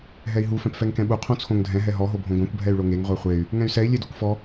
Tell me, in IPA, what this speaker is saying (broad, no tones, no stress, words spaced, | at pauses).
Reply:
ɦɛi̯ɦu fɛ̃pfɛŋkɛ̃ɓu qʰõt͡sʰõŋdʱɛ̃ ɦɛɦɔ ɦobʱõɡʷãkʷ bʱɛy̯ɭoŋeŋ ʁʷɛχʷey̯ | ŋɛ̃y̯sɛi̯ lʲedokʷfɔ